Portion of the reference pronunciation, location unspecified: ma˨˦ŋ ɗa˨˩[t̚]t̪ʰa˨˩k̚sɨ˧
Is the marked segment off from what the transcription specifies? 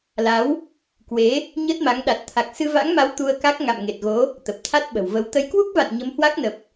no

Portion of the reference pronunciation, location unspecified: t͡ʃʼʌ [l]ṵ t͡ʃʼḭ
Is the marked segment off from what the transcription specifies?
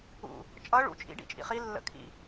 yes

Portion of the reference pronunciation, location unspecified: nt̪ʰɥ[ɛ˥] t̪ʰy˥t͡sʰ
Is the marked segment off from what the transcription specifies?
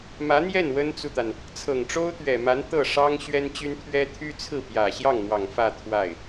no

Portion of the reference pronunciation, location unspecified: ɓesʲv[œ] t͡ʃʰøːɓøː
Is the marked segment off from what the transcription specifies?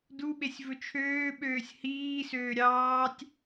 yes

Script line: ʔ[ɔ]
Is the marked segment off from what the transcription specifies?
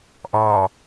no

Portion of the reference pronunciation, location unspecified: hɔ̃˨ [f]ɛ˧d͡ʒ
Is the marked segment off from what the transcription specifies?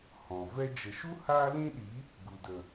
yes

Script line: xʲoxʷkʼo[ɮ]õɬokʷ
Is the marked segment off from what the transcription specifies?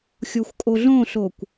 no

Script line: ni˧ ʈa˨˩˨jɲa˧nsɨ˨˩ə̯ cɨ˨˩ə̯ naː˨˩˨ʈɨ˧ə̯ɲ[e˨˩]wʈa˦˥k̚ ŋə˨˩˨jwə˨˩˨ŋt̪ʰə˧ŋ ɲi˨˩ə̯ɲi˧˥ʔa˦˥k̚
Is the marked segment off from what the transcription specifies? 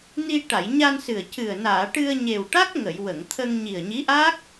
no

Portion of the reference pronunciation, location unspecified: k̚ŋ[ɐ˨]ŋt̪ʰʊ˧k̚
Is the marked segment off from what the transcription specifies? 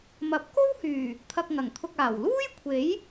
yes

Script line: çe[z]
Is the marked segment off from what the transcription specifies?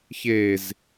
no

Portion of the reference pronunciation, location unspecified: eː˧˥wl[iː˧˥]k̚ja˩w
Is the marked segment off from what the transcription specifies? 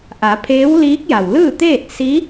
no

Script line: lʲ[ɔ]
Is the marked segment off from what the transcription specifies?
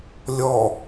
no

